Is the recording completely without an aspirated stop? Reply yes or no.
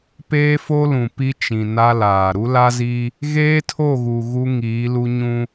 no